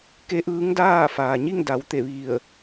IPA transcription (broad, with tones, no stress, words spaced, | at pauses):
ke˧˥ʔɯː˧˥ŋdaː˥˨ faː˩ɲi˥˨ŋda˩˧w t̪e˧˩ʋi˧˩ə̯